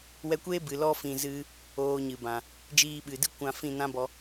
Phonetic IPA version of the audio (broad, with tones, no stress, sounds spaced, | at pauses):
w ɛ˧ kʷ eː˦ b ɨ˨ l ɔ˧ f ĩ˨ z ɨ˧ | oː˧ ɲ ɨ˨ b ã˨ | d͡ʒ iː˧ ɓ ɨ˨ d ɨ˦ kʷ ã˧ f ĩ˦˨ n ã˦ b ɔ˧